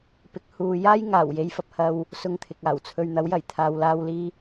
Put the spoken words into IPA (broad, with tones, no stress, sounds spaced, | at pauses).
p ɪ˨˥ k̚ h uː˨ j aː˥ j ŋ aː˨˩ w j e˨ j f ɐ˨ p̚ h ɐ˧ w | s ʊ˧ ŋ t̪ʰ ɪ˨ k̚ aː˨˩ w t͡sʰ ɵ˧ ɥ n̪ ɐ˨˥ w j ɐ˨˩ j t̪ʰ aː˨ w l aː˧ w l iː˧